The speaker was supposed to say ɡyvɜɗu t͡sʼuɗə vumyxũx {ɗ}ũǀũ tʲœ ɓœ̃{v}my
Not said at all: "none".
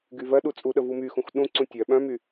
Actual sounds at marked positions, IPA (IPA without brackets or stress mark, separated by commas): ɗ, none